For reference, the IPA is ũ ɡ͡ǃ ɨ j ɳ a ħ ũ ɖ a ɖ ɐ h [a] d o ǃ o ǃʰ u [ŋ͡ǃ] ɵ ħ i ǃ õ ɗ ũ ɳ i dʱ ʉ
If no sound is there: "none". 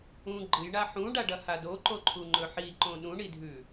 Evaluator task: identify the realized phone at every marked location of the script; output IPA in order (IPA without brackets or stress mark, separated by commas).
a, ŋ͡ǃ